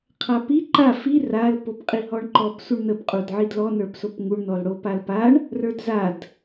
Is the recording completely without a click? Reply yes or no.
no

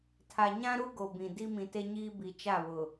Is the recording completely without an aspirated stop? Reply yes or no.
no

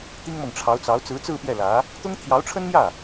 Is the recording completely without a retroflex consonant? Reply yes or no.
no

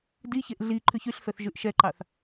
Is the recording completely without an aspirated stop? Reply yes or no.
no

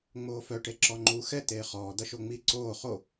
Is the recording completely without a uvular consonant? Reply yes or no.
no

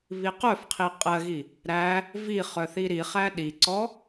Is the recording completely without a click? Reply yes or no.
no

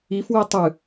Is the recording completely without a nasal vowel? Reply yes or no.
yes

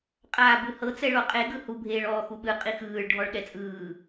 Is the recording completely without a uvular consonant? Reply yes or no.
no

